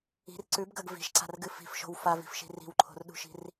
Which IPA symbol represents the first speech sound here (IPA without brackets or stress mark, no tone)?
i̤